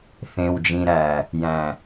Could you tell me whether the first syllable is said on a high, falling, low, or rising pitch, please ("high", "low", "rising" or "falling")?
low